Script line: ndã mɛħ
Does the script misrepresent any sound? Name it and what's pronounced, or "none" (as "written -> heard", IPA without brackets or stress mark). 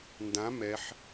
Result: none